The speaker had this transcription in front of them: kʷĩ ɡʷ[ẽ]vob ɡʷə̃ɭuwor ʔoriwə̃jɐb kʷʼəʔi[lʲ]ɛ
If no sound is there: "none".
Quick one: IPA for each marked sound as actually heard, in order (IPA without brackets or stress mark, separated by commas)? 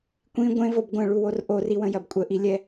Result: ẽ, lʲ